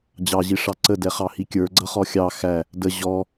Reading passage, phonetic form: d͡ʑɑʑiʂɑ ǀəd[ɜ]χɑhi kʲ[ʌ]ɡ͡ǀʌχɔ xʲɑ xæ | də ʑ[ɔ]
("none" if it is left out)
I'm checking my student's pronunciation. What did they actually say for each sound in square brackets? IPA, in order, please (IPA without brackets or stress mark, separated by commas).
ɛ, ə˞, ɔ